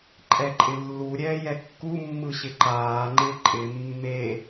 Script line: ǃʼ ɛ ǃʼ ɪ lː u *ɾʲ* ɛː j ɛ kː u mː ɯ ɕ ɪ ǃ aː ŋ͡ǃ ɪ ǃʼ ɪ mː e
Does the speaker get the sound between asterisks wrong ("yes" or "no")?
no